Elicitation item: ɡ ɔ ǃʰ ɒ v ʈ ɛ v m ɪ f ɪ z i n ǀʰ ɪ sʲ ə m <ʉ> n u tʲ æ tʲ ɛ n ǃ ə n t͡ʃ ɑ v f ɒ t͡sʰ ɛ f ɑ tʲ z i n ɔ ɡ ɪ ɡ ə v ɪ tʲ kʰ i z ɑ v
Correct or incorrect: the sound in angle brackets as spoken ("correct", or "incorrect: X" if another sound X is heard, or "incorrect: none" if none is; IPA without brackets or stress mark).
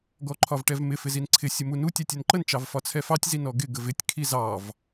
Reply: incorrect: u